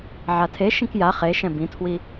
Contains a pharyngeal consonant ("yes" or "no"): yes